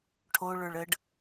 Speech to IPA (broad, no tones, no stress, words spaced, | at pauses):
ʈʰo ɭə˞ɭəɖ